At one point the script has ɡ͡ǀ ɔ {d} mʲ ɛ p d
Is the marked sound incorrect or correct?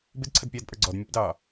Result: correct